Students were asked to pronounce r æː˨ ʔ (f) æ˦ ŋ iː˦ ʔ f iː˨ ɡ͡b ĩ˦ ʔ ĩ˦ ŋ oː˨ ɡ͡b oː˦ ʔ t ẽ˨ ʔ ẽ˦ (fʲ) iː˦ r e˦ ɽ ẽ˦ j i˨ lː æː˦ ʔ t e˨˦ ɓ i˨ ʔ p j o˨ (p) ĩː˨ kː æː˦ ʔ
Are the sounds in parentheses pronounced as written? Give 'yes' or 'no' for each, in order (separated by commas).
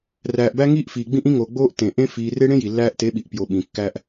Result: no, no, no